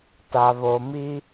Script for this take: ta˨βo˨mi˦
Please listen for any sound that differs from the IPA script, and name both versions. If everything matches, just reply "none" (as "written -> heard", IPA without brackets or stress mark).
none